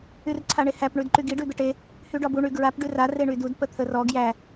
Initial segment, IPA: y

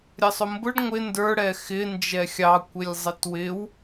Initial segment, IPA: ɾʲ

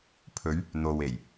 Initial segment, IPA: pʰ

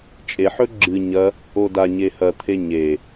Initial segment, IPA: t͡ʃʼ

